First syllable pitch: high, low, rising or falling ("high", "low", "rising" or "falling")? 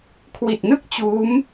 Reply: low